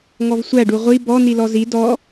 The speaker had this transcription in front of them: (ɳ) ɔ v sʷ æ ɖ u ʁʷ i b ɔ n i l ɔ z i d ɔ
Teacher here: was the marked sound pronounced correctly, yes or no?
no